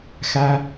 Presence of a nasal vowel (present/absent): absent